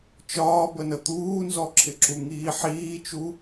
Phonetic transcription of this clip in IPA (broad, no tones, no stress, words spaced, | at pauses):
t͡ʃɒːbənə t̪uːnzɔǁʰɪ ǁuŋiːħiːt͡ʃu